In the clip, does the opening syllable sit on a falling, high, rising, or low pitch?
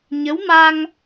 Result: rising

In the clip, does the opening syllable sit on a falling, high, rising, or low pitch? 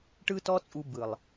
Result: high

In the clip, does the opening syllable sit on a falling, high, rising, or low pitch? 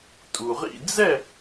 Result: low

